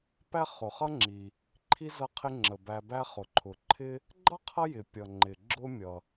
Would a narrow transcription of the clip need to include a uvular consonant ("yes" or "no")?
yes